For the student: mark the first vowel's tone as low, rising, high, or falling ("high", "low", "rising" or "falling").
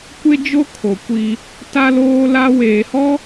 high